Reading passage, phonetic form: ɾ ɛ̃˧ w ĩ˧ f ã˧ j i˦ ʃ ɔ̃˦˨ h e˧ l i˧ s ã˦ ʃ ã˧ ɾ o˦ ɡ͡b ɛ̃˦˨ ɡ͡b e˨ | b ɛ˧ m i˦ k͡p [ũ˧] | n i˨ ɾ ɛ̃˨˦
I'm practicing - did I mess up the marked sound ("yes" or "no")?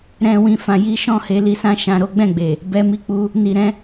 yes